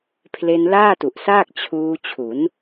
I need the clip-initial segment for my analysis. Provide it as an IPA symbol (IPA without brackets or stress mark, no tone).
pʰ